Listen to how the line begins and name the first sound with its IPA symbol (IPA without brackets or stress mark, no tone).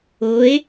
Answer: o